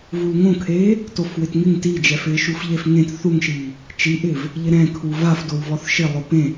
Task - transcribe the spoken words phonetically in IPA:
vulŋõkʰeː | tofwɪtŋɪŋ tid͡ʒɛfɪːʃuf ʎefŋẽt θuŋʃiː | t͡ʃiʔɪːv | ʎɪɾɛ̃ kʰuvafdowvɔθ ʃɪlˠʊ pẽ

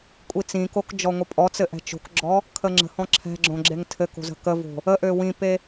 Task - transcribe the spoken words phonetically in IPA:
kʷʼit͡sĩkok d͡ʒɔŋʷəpʼɔt͡sɘ ʔɛ̤t͡ʃo̤kɡ͡ǁɔ | kʰəŋ͡ǁə̤hɔ̃ ǁʰɛ̤ɡ͡ǁõ ɡ͡ǁeŋtʰɘko̤ zə̤kəvo̤ | əʔø wĩpe

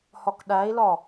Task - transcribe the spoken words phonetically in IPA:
hɒkɗæi̯lɒ

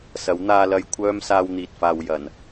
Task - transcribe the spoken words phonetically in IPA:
sɐ˨˥wn̪aː˧lɐ˧jkʷʰœː˥m saː˧wn̪iː˨t̚faː˨w jɐ˨˩n

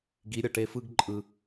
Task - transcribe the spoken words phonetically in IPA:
ɡi˨˦ ɾʲʌ˨ʈe˧fɯ˦ɡ ǃʼɯ˨

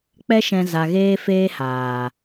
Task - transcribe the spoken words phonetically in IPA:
k͡pɛ˦ʃɛ̃˧ za˧ɣeː˦ feː˦haː˨

